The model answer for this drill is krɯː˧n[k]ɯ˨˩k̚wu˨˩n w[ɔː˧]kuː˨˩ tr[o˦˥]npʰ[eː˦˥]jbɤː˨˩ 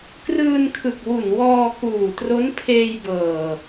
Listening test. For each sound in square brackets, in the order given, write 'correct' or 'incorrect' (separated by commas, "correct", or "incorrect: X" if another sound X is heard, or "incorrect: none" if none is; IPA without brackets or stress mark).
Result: incorrect: kʰ, correct, correct, incorrect: eː˧